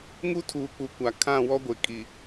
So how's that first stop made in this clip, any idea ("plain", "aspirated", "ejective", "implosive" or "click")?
aspirated